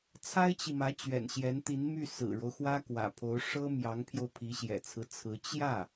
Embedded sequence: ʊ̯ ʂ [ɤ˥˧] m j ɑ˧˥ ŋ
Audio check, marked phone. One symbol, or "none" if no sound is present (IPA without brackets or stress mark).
ɤ˥